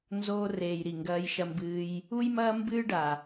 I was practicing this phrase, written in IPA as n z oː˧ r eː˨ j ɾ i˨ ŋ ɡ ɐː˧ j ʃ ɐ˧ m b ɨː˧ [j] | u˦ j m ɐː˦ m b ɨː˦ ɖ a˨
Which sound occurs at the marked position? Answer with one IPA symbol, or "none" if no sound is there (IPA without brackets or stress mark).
j